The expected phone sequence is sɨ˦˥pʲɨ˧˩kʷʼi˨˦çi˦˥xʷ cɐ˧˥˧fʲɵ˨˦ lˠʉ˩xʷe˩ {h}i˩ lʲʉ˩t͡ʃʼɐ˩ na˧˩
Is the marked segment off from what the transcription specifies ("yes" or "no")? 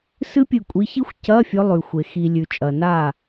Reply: yes